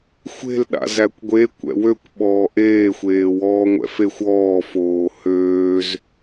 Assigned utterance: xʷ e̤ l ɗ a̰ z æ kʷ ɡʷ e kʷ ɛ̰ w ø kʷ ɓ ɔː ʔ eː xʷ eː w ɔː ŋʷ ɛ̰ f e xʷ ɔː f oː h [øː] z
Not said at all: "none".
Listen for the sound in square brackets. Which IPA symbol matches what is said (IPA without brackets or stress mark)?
øː